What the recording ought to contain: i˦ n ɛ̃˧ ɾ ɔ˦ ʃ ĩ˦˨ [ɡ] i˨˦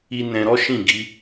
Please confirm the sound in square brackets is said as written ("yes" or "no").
yes